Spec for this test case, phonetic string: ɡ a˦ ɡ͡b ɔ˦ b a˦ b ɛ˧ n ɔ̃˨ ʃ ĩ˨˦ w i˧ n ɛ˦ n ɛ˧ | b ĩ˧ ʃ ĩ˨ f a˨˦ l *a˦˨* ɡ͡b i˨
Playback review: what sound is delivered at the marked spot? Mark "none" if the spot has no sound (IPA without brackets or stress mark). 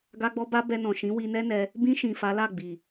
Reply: a˦˨